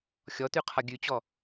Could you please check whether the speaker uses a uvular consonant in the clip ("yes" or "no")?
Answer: yes